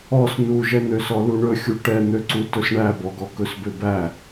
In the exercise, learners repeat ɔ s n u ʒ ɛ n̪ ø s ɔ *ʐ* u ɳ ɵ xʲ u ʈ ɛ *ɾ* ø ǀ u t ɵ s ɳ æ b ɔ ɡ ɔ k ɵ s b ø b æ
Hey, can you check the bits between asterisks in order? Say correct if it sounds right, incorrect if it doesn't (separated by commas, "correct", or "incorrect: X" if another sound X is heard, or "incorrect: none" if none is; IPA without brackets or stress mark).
incorrect: l, incorrect: n̪